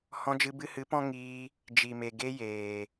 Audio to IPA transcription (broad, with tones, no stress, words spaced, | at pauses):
hɔ̃˧d͡ʒɨ˧bɨ˧hɨ˨˦ pɔ̃˦ ŋiː˧ | d͡ʒi˨me˨ ɡe˧jeː˨